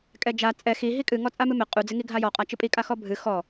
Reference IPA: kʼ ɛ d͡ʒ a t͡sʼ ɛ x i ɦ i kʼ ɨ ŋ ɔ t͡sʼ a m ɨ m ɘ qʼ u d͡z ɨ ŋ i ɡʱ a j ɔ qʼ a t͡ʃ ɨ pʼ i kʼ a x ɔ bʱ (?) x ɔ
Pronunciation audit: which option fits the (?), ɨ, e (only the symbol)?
ɨ